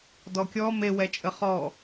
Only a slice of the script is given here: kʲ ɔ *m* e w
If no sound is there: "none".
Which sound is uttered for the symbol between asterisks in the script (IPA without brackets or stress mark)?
m